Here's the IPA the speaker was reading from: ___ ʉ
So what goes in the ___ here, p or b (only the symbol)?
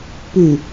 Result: p